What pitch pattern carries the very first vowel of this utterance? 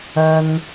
high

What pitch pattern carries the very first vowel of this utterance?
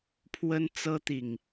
high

